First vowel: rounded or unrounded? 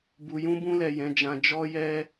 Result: rounded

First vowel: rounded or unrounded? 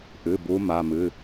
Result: unrounded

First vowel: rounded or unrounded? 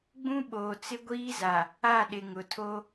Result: rounded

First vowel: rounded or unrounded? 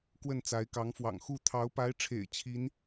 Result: unrounded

